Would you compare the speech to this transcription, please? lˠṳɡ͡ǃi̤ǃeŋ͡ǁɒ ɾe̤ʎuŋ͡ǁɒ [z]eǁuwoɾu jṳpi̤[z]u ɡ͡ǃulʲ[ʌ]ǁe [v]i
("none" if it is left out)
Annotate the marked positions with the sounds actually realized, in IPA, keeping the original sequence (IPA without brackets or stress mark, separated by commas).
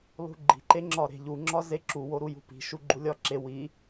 z, ʃ, ɒ, w